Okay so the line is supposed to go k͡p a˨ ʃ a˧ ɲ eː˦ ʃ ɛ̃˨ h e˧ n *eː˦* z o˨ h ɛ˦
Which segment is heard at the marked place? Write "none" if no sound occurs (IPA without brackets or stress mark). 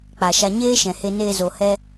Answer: eː˧